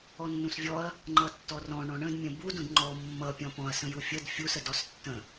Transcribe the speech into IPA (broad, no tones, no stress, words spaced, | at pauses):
ɔnːũsvʲɔɐ̯ | ŋ͡ǃʌtːɔrɔ̃ ɳɔ̃ɳə̃d mʲə̃bud ũdŋ͡ǃɔ mːʌ pʲɔ̃pɔ̃ɐ̯ sə̃jufʲəd fʲus ədɔstːə̃